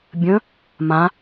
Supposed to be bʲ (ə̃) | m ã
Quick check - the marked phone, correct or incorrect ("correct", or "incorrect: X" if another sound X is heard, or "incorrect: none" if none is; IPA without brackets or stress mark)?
correct